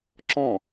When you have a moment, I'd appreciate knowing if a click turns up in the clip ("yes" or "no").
yes